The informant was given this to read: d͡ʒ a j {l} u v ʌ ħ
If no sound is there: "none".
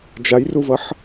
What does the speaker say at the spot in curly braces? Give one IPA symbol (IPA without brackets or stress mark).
r